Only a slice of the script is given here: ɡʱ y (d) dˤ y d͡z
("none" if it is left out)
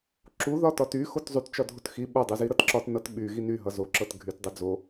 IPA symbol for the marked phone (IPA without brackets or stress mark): t